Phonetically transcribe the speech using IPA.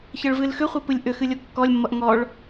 çʌɭvɨlxʏχʷɨ pɨlʲʔʏxɨ lʲokːɔlʲmːʌʔ ŋɔɭ

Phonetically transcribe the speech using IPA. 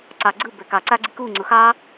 ǀɑ ɡ͡ǀɯ bɛkɑ ǀaɡ͡ǀiku ŋ͡ǀʊxɑ

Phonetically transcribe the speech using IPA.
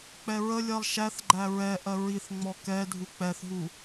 k͡pɛɹəlʲɜlˠ ʃæθɡ͡ǃæ ɹɛ ʔɜɹiθŋ͡mɔ kɛ dʱuk͡pɛθɦu

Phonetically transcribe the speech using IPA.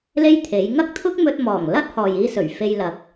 le˥jt̪ʰe˨˥j ŋɐ˥k̚t̪ʰʊ˥k̚mɵ˧t̚mɔː˨˩ŋ lɐ˥t̚hɔː˨jiː˧sɵ˨˩ɥ fe˧jlɐ˨k̚

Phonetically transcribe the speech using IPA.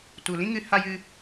tu˨lĩ˦ŋɨ˧ ha˧jɨ˧

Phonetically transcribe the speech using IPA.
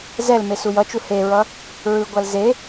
zɛlme sujʌt͡ʃu heɹʌ | ɹɯɡʷal ze

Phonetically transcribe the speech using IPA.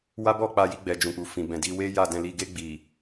wa˦bɔ˦˨k͡pa˧ ji˧ɡ͡bɛ˨d͡ʒũ˨ k͡pu˨ fĩ˨bɛ̃˨di˧ we˦ja˦˨dɛ̃˧li˧ ɡe˧ɡ͡bi˨

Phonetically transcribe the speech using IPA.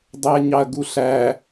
dˤeɐ̯ɲɑɐ̯ɡuɬæ

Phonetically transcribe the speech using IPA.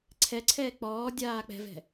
ǀʰɛǀʰɛː k͡pɔː dʲaːk͡pɛ̤vɛ̤

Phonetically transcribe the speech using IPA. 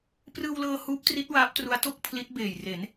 prɯː˧wlɤː˧ huː˦˥p̚tri˦˥t̚ waː˦˥p̚tru˦˥a̯to˥˩k̚pʰli˦˥t̚ beː˨˩jre˩˦n

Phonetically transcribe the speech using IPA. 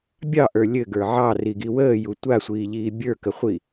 bʲɑʔə˞ lʲɘɡə˞ ʕɑriɡi wəːju tʷasʷiːʎiː bʲə˞kəχʷi

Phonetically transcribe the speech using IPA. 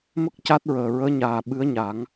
mə˦˥k̚ca˦˥t̚ɹəː˨˩ ɹəː˧˥ɲaː˨˩ ɓɨ˧˥ə̯ɲa˨˩˦ŋ

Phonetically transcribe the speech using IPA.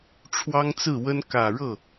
ʈ͡ʂʰwɑ˥ŋt͡sɹ̩˥˩wə˥n kä˨˩ɻɤ˥˩

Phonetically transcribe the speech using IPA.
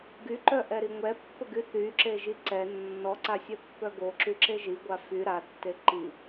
ɡyǃœʔɛɾi ŋʷɛpːəɡy θyǁeʒi ǀɛ nːɔǀasʲɛpːœ ɡoǁyǁe ʒiɡʷa fy ɾatːe ǃi

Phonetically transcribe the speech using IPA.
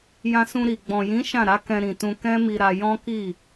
jã˧sũ˧ɾi˨ ɡ͡bɔ̃˨jĩ˨˦ ʃã˦˨ɾa˨˦ kɛ̃˧ɾĩ˨tũ˧ kɛ̃˦mi˧ɾa˧ jɔ̃˦ki˦˨

